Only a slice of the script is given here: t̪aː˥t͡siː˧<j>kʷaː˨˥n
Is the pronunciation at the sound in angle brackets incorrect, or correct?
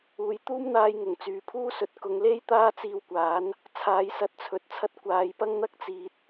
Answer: incorrect: w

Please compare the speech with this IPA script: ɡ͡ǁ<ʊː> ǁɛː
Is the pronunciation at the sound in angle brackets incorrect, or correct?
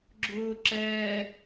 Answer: correct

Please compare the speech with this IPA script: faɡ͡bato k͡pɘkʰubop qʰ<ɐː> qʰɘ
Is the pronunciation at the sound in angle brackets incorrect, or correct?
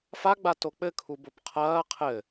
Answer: correct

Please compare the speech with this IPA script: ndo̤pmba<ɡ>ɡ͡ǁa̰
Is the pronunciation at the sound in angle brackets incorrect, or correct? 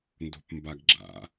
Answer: correct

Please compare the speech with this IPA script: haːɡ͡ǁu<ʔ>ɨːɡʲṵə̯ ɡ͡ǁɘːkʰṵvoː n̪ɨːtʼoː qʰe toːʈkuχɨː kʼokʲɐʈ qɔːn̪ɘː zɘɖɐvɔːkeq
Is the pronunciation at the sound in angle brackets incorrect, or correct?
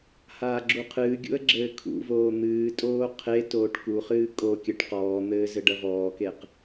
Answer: incorrect: qʰ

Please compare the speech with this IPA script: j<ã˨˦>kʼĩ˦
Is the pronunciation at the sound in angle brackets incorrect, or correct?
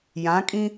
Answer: correct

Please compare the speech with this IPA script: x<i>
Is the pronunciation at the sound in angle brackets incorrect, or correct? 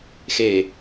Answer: incorrect: e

